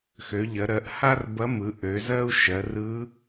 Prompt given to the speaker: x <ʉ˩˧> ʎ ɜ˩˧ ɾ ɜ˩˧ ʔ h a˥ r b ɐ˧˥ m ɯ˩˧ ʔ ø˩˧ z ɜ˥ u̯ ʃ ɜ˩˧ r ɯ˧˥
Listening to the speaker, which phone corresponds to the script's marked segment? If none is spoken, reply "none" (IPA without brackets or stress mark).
ø˩˧